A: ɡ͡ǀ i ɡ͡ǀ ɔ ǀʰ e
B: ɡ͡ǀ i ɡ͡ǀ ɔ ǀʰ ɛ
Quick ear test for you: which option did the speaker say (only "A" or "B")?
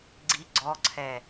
B